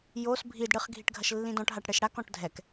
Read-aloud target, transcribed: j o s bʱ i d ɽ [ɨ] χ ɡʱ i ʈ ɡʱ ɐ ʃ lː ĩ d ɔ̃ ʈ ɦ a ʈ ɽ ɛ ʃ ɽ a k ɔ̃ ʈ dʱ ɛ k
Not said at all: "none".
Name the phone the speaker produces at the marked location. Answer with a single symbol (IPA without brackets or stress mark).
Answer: ɨ